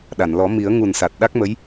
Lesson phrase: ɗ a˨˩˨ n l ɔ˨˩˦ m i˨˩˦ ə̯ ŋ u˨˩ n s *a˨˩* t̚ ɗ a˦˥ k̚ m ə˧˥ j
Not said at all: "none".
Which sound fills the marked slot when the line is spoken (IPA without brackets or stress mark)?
a˨˩